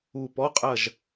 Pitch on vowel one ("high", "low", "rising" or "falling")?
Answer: falling